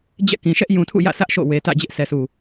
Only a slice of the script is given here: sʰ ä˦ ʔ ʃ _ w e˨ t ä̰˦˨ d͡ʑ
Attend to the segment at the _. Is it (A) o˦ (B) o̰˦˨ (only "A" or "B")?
B